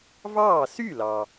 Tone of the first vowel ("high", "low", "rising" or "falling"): falling